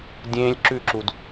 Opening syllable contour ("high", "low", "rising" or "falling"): high